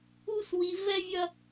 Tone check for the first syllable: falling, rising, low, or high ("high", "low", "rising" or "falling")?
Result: high